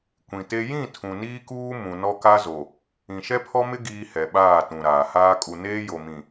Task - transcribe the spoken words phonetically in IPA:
kʷ ĩ˨ t e˦ j ĩ˦˨ tʰ ũ˨ n iː˦ k uː˦ m ũ˨ n ɔ˦ k a˦ z o˨ | ĩ˨ ʃ ɛ˦ pʰ ɔ˦ m ɪ˦ ɡ iː˦ h ɛ˨ ɓ aː˦˨ t ũ˨ ɾ aː˨ h aː˦ kʼ u˨ n eː˦ j o˨ m ĩ˨

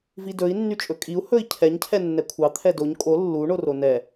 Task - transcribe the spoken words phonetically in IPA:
v i d ɵ i̯ nː y t͡ʃʼ ɵ kʼ i u̯ h ɵ i̯ cʰ ɛ ɲ cʰ ɛ nː ɛ kʷʰ ɑ t̪ʰ ɛ d o ɲ kʼ o lː u ɳ o r o n ɛ

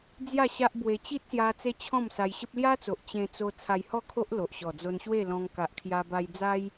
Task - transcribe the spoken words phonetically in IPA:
d͡z j a˥˧ ɕ a˦ ʔ b w e˧ t͡ɕ i˦ t̚ s j a˧ t͡s e˦ t͡ɕʰ ɔ̃˥˧ m s a˧ j ɕ ə˦ p̚ l j a˦ t͡s o˨ ʔ t͡ɕ ẽ˧ t͡s o˧ t͡sʰ a˧ j h ɔ˥˧ kʰ o˦ ʔ l o˨ ʔ ɕ ɔ˨˩ d͡z o˧ n ɕ w e˥˧ l ɔ̃˧ ŋ k a˨ ʔ kʰ j a˧ b a˧ j d͡z a˦ j

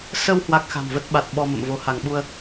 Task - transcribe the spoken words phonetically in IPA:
s ə˧ w h w a˦˥ k̚ x a̤˨˩ m v ə˦˥ t̚ ɓ a˨˩ t̚ ɓ ɔ˧ m ə̰˧˨ m v o˨˦ h a˧˩ ŋ ɓ u˧ ə̯

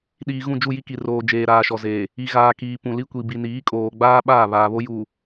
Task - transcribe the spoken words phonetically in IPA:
ɗ iː˨ ɣ ũ˦˨ d͡ʒ u˦˨ j i˦ k i˨ r oː˨ d͡ʒ eː˨ ɾ aː˨ ʃ ɔ˨ z eː˨ | i˨ ɣ aː˨ k iː˨ p ũ˨ l i˦ kʷ i˨ b i˨ n iː˨˦ kʼ oː˨ ɡ͡b aː˦ ɓ aː˦˨ β aː˨ β o˦ j uː˨

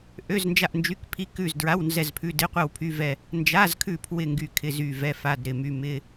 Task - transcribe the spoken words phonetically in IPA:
ʔ ø˧˥˧ z n d͡ʒ a˦˨ ʔ n d͡ʒ y˧˥˧ k pʰ i˧˥˧ k ʉ˦˨ z d ɹ a˧˥˧ w n z ɛ˦˨ z pʰ ʉ˧˥˧ d ɪ˧˥˧ qʷ a˦˨ w pʰ y˧˥˧ v ɛ˦˨ | n d͡ʒ a˧˥˧ z kʰ ʉ˦˨ pʰ w ɪ˦˨ ŋ ɡ y˦˨ kʰ ɪ˧˥˧ z y˦˨ v ɛ˧˥˧ f a˧˥˧ d ɾ ɪ˦˨ m y˧˥˧ m ɪ˧˥˧

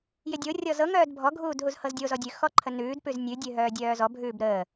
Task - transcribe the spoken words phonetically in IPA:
j ɪ dʲ o rʲ ɔ z ɤ ŋ œː d bʱ ɔ ɡʱ uː d ɦ u z h ɤ z dʲ o z ɔ dʲ ʉ x ɔ ǃʰ ə n ʉː d p ʉ z nʲ ʉ dʲ ʉ ɦ œː dʲ œː z ɔ bʱ ʉː b ɾ əː

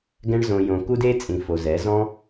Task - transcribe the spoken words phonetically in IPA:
ɡ ɛ̃˧ ɳ z õ˨ j õ˨ k u˦ d e˦ t͡sʼ ĩ˨ f o˨ z ɛ˨˦ z ɔ̃˦

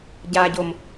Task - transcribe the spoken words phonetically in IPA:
ɟ a ɟ o m

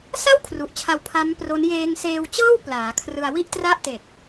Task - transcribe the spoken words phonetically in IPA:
s a˥˩ w kʰ r u˨˩ ʔ t͡ɕʰ a˧ w pʰ a˦˥ m p r o˦˥ n j eː˧ ŋ s eː˧ w t͡ɕ ɤː˥˩ w p l aː˩˦ kʰ r ɯ˧ a̯ w i˥˩ ʔ t r a˥˩ ʔ t e˨˩ k̚

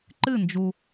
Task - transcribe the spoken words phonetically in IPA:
ǃ ɨ˥˩ n d͡ʒ u˩

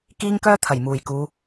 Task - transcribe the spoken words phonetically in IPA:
k iː˧ ŋ k œː˧ t̪ʰ ɐ˨˩ j m uː˨˩ j k uː˨˧

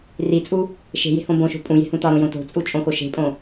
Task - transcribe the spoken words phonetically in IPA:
r i t͡sʼ u | ʃ e̤ j e̤ h õ b õ ʃ o̤ pʼ ũ j e̤ h ũ t ɒ ɾ õ j õ t o̤ t͡sʼ u t͡ʃʼ õ x o ʃ e̤ pʼ õ

